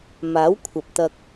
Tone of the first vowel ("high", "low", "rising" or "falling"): rising